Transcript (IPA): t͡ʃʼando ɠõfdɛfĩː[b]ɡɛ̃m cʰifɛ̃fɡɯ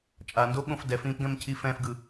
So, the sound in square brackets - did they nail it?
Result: no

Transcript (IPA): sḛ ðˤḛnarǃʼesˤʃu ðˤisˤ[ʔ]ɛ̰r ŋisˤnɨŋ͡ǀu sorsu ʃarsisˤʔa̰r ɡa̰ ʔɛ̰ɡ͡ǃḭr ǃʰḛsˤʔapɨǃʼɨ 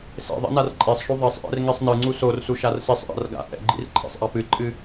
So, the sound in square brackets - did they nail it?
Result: yes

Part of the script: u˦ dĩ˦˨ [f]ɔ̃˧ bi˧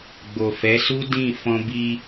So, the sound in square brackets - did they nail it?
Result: yes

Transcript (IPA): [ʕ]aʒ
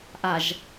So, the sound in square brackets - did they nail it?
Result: no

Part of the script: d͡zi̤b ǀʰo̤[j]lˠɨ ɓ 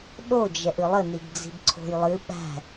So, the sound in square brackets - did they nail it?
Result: yes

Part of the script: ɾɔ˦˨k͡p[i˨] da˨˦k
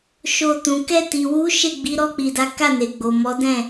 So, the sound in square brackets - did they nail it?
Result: yes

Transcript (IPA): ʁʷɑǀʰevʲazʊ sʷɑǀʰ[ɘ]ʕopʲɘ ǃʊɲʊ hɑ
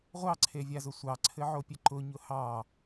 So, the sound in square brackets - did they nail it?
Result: yes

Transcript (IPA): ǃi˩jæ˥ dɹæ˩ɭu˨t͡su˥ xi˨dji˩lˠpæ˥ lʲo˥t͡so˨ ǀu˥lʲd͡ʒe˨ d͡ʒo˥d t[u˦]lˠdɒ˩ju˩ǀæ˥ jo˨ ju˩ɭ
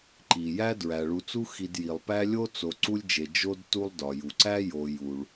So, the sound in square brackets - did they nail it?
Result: yes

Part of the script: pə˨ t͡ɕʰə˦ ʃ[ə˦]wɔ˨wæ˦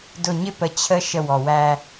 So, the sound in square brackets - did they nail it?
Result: no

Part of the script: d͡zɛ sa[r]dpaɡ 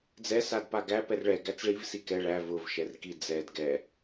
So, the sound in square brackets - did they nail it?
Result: no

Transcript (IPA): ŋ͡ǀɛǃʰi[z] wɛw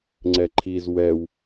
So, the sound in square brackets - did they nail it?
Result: yes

